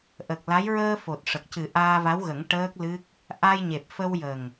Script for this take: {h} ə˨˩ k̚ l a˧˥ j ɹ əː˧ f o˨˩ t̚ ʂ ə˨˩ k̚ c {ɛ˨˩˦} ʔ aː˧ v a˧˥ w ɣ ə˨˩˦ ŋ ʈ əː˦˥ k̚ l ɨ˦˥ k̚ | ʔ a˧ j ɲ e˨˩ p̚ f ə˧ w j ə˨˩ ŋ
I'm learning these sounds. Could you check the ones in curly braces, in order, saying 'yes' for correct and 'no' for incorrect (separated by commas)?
no, no